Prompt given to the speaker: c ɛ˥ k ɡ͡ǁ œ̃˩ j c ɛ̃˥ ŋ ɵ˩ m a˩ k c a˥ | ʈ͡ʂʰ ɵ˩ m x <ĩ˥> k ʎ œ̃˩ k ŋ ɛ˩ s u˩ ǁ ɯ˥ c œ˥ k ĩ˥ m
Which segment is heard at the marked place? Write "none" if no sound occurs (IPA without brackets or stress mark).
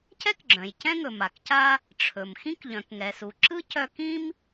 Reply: ĩ˥